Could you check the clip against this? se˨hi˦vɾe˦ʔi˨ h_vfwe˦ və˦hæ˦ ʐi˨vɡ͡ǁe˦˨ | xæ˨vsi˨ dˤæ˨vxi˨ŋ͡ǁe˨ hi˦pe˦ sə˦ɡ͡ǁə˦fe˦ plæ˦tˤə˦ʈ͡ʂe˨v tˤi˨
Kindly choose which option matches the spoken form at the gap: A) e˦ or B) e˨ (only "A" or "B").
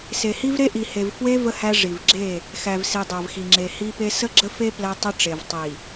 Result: B